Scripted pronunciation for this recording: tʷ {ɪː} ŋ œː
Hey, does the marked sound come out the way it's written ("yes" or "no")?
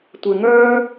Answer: yes